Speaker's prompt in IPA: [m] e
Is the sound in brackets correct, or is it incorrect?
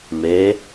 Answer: correct